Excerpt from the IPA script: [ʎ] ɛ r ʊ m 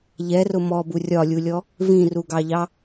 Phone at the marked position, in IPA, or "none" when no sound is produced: ʎ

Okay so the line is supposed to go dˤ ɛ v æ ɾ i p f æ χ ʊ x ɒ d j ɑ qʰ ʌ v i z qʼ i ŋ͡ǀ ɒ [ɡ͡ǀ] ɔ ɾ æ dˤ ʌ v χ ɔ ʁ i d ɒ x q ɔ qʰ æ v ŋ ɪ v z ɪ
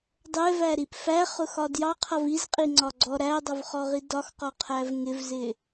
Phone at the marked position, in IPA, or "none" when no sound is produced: ɡ͡ǀ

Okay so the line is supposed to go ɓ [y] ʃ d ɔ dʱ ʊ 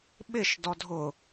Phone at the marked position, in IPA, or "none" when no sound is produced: ɪ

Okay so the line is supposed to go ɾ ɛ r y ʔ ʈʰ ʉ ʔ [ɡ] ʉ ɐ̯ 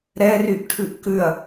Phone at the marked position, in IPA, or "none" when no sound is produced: k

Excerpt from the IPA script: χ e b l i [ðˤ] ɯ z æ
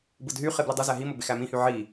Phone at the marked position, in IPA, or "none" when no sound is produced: dˤ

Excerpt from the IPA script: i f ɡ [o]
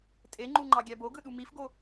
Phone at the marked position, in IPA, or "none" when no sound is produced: o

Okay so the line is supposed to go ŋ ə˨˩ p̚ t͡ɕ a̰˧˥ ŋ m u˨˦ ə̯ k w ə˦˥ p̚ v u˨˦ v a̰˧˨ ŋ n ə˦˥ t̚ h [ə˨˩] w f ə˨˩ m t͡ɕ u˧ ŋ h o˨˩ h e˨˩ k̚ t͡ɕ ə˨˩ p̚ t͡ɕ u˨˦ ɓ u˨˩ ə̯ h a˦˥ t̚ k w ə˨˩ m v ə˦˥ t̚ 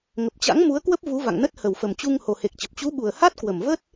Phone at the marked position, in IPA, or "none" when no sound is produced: ə˨˩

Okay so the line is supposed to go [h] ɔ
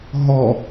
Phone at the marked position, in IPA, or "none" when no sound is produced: ɦ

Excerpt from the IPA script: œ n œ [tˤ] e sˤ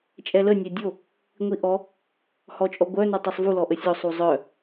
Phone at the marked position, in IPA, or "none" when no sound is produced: tˤ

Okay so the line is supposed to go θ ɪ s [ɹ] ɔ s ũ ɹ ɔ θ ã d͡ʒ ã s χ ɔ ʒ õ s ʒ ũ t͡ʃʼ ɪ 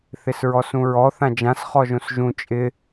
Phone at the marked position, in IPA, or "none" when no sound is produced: ɹ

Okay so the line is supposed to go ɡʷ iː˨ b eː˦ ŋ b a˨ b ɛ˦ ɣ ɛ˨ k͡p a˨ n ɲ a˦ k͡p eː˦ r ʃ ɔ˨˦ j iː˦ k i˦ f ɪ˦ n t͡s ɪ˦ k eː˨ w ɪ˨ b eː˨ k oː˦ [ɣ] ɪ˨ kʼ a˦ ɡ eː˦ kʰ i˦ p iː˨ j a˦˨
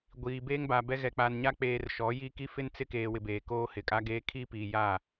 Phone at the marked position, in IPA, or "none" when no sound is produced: h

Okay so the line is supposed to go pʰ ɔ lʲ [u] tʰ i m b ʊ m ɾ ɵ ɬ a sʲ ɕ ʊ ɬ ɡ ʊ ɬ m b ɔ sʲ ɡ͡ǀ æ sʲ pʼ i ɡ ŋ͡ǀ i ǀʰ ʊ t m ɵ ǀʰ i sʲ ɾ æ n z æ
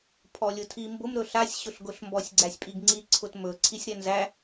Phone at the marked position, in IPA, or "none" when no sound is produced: ʊ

